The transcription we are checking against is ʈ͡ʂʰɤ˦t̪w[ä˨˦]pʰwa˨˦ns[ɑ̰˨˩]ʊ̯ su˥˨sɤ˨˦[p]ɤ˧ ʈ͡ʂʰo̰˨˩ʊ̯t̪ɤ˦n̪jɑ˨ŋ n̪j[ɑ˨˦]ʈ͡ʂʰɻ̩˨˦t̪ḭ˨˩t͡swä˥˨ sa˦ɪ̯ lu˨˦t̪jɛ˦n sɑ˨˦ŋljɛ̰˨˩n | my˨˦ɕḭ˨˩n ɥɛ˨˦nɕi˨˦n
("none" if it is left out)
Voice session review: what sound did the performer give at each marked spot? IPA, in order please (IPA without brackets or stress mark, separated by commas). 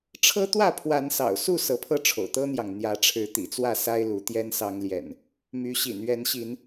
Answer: ä˥˨, ɑ̰˨˩, pʰ, ä˨˦